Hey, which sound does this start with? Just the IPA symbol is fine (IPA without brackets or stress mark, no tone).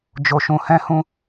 d͡ʒ